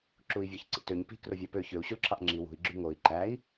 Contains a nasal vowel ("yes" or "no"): no